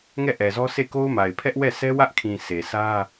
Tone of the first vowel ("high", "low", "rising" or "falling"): falling